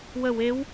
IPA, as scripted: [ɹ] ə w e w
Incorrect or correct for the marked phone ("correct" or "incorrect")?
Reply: incorrect